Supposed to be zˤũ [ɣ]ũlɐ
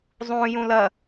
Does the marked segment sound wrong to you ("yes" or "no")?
yes